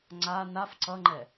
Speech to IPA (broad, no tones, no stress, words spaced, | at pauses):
ŋ͡ǀa naf ǀʌŋ͡ǃɛ